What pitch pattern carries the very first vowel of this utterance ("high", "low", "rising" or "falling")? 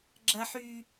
high